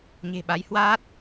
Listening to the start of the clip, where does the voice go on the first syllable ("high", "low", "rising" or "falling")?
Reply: low